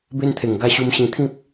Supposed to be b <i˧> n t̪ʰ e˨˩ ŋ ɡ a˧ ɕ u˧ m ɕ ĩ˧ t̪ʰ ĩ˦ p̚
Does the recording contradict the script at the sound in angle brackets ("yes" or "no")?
yes